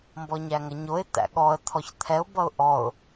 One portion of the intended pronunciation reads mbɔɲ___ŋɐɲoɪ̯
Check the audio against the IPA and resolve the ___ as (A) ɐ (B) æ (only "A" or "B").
B